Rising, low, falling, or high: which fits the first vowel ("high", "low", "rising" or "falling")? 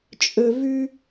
low